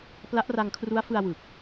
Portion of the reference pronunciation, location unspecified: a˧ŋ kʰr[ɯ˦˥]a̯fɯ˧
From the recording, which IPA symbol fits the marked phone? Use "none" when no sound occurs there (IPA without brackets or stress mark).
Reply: u˦˥